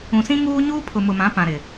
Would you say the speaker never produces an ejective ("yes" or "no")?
yes